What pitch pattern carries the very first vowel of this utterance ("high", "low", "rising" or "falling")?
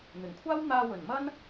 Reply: low